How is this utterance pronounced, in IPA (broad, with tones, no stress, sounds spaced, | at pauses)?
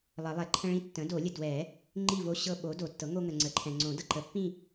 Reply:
lˠ ə˨˩˦ lˠ ɛ˩˥ ǃʰ ə̃˦ ɭ ĩ˥˨ tː ə̃˩˥ d o˨˩˦ lʲ ə˨ d w ɛ˨˩˦ | ŋ͡ǃ i˥˨ v o˦ ɕ ɤ˦ ɓ o˩˥ d o˨˩˦ tː ɤ˩˥ ŋ o˦ ŋ ə˨ ŋ͡ǀ ə˨˩˦ ǃʰ ɛ̃˨ ŋ͡ǀ õ˨˩˦ d ɤ˨ ǃ ə˩˥ pː ĩ˥˨